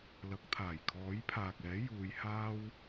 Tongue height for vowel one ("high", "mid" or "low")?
low